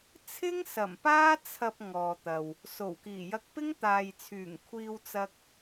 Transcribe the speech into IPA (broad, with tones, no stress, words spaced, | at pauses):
t͡sʰɪ˥ŋ sɐ˨˩mpaː˥ t͡sʰɐ˨p̚ ŋɔː˨t̪ɐ˨w | so˨˩wkiː˨˩jɐ˧k̚pɪ˥ŋ t̪aː˨jt͡sʰyː˨˩ŋ kʷʰiː˧wt͡sɐ˧k̚